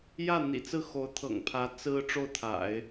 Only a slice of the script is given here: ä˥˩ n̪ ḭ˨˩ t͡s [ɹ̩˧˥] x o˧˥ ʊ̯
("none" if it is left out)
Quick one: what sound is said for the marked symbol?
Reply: ɹ̩˥˩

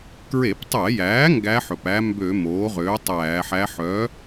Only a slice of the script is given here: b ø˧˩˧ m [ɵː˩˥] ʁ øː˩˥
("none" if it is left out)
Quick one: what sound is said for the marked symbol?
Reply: oː˩˥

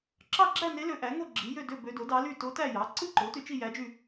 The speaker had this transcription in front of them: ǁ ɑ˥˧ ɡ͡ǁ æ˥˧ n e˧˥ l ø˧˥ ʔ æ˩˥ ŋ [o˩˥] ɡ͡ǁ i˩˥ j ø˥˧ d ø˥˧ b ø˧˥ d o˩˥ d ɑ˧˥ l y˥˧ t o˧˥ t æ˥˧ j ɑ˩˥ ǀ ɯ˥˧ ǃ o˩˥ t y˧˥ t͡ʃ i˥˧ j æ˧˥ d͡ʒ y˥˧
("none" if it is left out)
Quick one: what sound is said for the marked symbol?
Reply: o˥˧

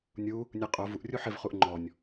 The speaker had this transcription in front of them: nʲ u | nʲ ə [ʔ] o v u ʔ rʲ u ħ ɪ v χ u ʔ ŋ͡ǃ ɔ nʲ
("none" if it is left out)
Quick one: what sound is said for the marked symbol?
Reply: qʼ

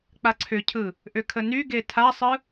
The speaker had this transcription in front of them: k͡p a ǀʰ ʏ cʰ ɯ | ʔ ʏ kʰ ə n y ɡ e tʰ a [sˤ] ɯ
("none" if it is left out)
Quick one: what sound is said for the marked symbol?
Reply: sˤ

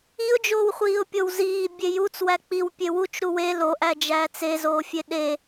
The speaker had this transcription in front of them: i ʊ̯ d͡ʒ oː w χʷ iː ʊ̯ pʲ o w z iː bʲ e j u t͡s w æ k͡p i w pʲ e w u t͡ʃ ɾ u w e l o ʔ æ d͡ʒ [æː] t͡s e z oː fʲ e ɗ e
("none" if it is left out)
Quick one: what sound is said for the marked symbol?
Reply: æː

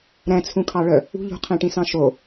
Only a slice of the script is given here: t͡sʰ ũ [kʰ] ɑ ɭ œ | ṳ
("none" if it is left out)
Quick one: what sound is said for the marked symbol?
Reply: kʰ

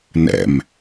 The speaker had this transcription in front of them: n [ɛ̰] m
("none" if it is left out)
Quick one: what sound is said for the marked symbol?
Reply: ɛ̰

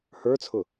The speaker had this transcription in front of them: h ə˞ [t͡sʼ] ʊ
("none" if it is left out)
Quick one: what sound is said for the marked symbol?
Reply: t͡sʰ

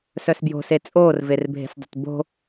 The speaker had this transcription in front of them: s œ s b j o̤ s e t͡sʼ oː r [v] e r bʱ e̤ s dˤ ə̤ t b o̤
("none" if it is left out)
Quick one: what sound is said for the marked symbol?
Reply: v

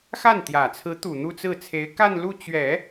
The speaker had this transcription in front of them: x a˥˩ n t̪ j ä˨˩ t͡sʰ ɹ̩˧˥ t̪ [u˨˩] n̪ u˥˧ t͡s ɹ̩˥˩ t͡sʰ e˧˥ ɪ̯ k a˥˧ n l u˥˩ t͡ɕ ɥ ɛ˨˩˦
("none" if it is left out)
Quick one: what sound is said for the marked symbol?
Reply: u˨˩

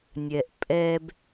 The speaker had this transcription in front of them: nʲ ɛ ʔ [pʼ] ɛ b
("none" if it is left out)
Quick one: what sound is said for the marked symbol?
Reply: pʼ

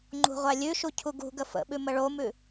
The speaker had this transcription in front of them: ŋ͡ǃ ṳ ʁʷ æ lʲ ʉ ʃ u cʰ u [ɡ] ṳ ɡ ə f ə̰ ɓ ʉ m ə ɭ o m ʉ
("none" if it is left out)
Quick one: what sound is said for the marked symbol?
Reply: ɡ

